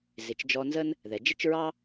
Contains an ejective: no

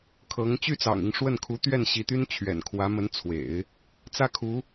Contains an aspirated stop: yes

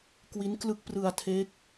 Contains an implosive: no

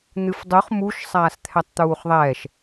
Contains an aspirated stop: yes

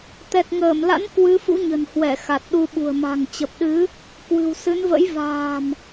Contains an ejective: no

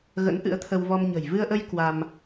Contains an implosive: no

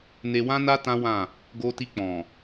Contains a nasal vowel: yes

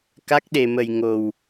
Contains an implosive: yes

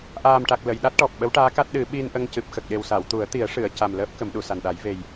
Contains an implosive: yes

